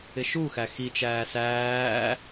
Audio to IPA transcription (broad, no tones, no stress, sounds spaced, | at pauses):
ɪ ʃ u x æ x i t͡ʃ æː s æː